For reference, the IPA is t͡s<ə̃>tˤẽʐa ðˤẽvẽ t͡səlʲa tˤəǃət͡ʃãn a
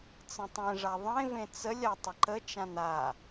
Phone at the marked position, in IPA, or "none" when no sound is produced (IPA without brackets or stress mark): ə̃